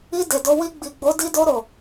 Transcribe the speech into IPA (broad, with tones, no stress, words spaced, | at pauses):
i˧ de˨do˧ wi˧ɡ͡bi˨ɡ͡bo˨˦ di˧do˧ ɾo˨